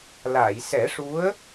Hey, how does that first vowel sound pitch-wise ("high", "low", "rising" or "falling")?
low